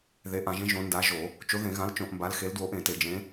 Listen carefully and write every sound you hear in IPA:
ð e˨˦ ʔ ã˧˩˧ ʒ ẽ˨˦ ʒ õ˨˦ n d a˨˦ ʒ o˧˩˧ | t͡ʃ o˨˦ ð ẽ˧˩˧ ɣ ã˨˦ l t͡ʃ õ˧˩˧ ʔ m b a˨˦ l x e˨˦ l d w o˨˦ ʔ ẽ˧˩˧ t e˧˩˧ d͡ʒ ẽ˨˦

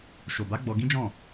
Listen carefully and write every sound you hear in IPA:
ʃ o˨ b a˨˦ ɡ͡b ɔ˧ ɡ ĩ˦ d͡ʒ ɔ̃˦˨

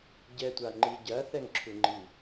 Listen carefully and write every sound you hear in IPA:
ɟ ɛ tʷ a ŋ͡ǃ i ɟ ɐ θ ɛ ŋ ǁʰ u ŋ͡ǃ i

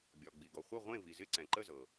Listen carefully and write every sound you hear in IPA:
bʲ ɒ˩ ɡ͡b i˩ ɡ ɔ˩ χʷ ə˥˨ ʁʷ ẽ˥˨ v i˩ z ɪ˥˨ ǀ ɛ̃˩ ǃ ə˥˨ z ɤ˩

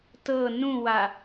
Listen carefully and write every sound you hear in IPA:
t ɤ n ũ w a

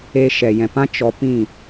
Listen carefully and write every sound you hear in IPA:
e˧ ʃ ɛ˨ j ɛ̃˨ p ã˦ t͡ʃ ɔ˧ p ĩ˦˨

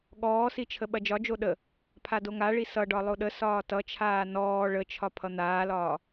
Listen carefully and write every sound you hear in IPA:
ɠ ɔː s i t͡ʃʰ ə ɓ ɐ d͡ʒ ɒ d͡ʒ o ɗ ə | pʰ a d o ŋ a ɭ i s ʌ ɖ ɒ lˠ o ɗ ə s ɒː t ʌ t͡ʃʰ aː n ɔː ɭ ə t͡ʃʰ ɒ pʰ ʌ n̪ aː l ɒː

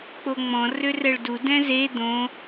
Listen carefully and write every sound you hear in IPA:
k͡p o ŋ͡m ɔ̃ r ø r ɛ ɭ d u d ɛ̃ z e d̪ õ

